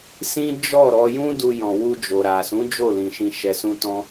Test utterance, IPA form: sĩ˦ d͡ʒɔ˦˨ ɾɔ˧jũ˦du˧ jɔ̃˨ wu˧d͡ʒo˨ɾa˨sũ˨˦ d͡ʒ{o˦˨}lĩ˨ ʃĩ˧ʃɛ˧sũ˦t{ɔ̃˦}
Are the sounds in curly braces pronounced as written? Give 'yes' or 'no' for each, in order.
yes, yes

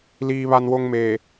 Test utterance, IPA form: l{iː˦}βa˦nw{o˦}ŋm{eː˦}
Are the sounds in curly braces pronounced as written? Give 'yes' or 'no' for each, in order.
yes, yes, no

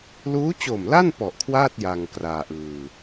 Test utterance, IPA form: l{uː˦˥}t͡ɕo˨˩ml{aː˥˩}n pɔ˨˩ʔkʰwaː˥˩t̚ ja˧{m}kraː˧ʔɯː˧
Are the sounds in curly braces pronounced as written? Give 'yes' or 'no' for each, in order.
yes, no, no

